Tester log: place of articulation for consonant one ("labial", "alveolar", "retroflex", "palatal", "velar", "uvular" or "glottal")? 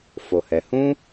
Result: labial